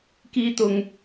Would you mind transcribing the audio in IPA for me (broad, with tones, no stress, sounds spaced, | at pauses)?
k iː˧ t̪ ʊ˧ ŋ